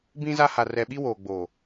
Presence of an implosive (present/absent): present